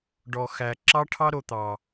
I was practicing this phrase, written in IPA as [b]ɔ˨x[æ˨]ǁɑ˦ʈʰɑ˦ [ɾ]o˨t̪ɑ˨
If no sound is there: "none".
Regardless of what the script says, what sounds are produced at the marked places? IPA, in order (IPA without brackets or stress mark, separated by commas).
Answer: ɖ, æ˨, ɾ